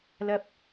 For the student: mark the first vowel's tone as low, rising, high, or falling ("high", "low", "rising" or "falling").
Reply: high